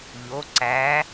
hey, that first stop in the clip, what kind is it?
click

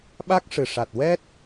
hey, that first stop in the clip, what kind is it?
implosive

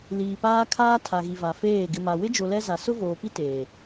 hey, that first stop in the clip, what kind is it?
plain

